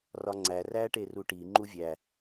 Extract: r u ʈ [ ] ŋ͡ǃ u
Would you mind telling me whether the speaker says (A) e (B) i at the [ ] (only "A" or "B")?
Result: B